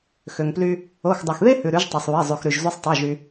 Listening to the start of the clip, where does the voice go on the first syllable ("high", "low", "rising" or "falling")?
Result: low